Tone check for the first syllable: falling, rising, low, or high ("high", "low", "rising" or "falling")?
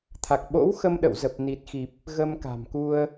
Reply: low